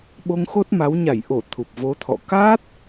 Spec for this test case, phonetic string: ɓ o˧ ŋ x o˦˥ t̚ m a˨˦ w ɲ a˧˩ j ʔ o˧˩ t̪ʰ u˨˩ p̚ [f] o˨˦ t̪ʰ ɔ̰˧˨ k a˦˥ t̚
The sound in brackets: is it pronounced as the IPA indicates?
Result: no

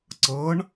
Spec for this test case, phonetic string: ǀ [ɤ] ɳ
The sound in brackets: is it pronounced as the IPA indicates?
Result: yes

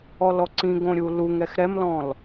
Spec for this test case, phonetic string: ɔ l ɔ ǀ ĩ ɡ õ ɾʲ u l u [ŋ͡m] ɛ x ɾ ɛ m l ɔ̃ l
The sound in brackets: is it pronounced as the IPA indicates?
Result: no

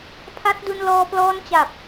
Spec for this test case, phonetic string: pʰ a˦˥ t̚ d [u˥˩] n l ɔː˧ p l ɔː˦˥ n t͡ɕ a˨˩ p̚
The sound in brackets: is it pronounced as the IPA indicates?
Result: no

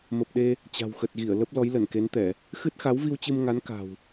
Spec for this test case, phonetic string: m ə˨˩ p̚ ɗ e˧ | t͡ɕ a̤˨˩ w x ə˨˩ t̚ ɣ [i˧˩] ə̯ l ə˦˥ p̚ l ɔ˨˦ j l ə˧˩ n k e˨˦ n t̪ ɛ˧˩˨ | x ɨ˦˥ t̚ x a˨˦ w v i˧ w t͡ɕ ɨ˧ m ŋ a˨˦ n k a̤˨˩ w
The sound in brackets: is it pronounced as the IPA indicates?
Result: yes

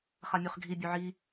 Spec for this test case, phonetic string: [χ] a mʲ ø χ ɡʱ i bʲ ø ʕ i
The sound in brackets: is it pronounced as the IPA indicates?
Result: yes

